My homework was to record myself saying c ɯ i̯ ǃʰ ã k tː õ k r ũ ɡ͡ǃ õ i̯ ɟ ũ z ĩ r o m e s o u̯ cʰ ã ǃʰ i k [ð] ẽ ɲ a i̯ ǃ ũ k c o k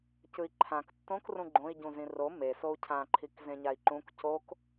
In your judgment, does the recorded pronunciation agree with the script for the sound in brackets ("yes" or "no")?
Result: no